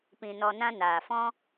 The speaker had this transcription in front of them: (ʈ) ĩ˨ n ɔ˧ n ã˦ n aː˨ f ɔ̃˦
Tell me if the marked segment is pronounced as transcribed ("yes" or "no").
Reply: no